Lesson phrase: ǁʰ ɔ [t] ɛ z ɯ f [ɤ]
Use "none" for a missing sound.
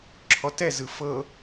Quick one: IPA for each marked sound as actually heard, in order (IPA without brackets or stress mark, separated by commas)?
t, ɤ